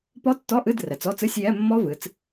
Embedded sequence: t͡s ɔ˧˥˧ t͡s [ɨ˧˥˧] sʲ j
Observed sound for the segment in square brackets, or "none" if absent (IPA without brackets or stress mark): ɨ˧˥˧